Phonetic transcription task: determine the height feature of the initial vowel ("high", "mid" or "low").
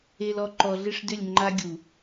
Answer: mid